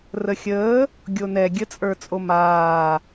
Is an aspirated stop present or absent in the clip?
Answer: absent